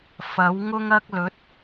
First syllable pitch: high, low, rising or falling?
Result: rising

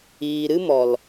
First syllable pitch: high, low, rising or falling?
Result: low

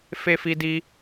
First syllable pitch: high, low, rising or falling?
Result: high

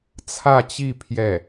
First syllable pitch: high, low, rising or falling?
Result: falling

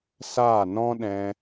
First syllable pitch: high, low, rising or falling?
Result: falling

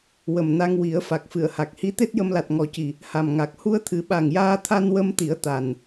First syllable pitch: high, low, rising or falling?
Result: low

